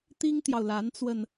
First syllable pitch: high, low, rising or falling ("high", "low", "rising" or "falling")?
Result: high